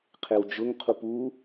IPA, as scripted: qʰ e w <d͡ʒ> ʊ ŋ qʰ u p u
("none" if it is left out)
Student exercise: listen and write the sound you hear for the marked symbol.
d͡ʒ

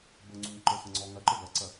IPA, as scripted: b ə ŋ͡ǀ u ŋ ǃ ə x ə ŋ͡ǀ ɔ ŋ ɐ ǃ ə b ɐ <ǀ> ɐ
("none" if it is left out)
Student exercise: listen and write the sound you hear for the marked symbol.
ǀ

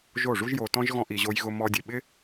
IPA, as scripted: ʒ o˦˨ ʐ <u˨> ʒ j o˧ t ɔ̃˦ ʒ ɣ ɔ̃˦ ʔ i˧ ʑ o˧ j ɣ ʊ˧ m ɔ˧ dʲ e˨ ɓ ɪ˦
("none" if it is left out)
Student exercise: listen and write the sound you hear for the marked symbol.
u˦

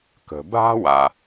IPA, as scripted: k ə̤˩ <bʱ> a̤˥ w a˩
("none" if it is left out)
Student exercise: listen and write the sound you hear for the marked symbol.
bʱ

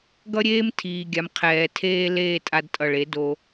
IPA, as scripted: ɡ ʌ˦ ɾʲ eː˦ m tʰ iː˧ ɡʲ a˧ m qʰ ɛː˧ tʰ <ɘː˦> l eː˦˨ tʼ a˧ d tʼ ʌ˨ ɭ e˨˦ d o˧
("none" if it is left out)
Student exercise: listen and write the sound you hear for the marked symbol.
eː˦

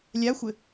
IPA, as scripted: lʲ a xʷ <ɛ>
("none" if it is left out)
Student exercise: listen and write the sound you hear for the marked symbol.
ɘ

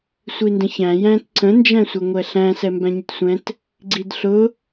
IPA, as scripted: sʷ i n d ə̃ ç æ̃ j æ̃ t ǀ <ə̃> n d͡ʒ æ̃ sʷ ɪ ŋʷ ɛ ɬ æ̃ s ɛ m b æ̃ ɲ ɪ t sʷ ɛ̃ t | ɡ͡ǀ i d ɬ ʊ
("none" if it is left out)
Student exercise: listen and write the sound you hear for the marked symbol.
ə̃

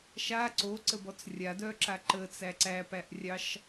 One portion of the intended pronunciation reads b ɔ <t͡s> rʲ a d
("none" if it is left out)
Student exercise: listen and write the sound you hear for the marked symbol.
t͡s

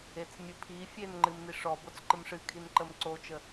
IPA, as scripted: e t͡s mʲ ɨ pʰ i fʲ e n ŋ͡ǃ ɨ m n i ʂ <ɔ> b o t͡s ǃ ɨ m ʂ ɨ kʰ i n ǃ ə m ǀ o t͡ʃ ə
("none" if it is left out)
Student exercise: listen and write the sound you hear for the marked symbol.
ɔ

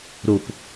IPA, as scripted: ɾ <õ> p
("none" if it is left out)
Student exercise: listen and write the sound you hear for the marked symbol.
o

